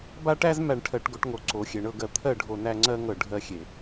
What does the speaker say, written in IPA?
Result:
b a˦ ʈ æ˦ z m æ˨ ɳ ʈʰ ɜ˨ ʈ ɡ o˨ ʈ ŋ o˨ ǀ o˨ xʲ e˨ ɳ ɤ˦ ɡ ɜ˨ t̪ʰ ɜ˦˨ ɖʱ o˨ n æ˦ ŋ͡ǀ ɜ˦ ŋ ɤ˨ ɖʱ ɜ˦ xʲ e˨

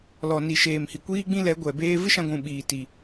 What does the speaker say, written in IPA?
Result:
l ɔ˨ n i˨ ʃ eː˨ m h i˨ kʷ iː˦ ɡ͡b ĩ˦ l ɛ˨˦ ɡʷ ɛ˨ b eː˧ v ɨ˦ ʃ ã˧ ɡʷ ũ˨ ɓ iː˨ t i˨

